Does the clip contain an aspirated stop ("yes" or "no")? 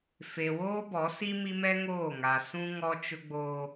no